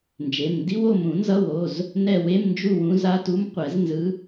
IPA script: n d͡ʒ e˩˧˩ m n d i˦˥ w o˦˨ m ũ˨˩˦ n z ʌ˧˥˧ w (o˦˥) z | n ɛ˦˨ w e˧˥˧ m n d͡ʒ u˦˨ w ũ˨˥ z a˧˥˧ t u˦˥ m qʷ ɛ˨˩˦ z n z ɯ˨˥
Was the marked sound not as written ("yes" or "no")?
yes